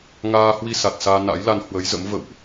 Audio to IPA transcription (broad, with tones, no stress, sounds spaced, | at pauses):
ŋ aː˧ h w i˧ s a˨˩ t̚ s aː˧ n a̰˧˥ j l a˧ n h w ə˨˦ j z ə̰˧˥ m v ə̰˧˨ w ʔ